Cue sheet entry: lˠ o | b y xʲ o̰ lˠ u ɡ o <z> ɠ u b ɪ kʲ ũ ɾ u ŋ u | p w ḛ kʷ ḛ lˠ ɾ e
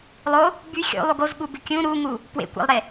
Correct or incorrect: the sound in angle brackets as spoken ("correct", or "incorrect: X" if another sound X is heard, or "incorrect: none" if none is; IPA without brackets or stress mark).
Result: correct